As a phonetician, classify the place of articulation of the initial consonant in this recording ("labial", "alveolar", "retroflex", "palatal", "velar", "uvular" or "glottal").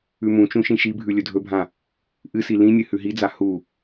labial